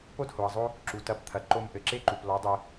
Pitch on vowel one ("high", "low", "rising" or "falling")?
high